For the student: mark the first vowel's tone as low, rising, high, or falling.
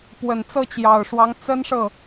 low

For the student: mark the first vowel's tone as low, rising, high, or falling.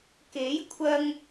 rising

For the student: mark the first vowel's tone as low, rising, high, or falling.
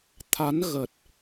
rising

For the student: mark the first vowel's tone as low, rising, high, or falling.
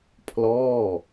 falling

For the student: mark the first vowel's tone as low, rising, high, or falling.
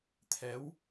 rising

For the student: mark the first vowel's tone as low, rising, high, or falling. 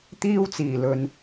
high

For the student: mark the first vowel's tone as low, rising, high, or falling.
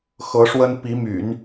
rising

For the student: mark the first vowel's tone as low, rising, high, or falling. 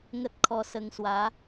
high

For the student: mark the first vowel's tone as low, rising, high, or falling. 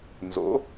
rising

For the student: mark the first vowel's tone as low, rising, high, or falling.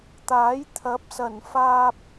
rising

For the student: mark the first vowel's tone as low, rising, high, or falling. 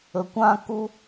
low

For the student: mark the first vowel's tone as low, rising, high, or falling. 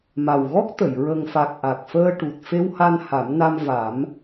low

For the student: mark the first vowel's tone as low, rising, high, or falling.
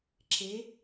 rising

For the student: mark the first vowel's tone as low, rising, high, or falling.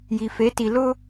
low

